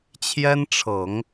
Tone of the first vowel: high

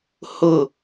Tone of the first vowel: falling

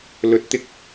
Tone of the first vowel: rising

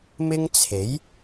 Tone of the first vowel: high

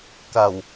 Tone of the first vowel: low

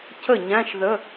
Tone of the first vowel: falling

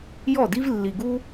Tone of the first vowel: falling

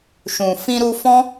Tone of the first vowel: low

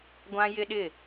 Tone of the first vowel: high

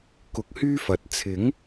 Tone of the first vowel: rising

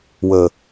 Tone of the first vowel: low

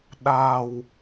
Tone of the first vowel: low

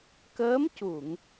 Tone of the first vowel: rising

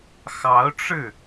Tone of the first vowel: rising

